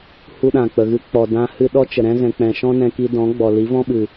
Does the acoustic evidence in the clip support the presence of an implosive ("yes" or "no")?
yes